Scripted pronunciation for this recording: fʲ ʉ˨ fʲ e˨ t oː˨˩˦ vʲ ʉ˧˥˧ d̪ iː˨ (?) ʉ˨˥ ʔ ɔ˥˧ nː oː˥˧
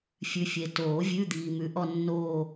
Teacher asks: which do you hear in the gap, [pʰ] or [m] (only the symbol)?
m